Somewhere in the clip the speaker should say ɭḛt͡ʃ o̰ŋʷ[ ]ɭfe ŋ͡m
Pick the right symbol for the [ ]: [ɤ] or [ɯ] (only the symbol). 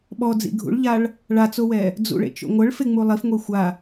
ɤ